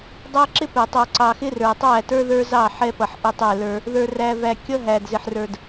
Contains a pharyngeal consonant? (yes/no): yes